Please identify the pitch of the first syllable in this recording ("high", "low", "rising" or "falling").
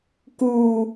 low